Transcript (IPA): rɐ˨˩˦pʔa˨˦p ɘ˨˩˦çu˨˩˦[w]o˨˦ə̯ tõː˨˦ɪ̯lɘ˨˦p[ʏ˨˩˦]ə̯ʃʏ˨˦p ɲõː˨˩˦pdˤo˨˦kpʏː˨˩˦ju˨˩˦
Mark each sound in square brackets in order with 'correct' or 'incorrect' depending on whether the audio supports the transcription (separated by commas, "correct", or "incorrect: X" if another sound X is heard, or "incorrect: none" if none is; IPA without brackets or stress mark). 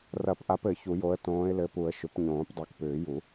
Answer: incorrect: j, incorrect: u˨˩˦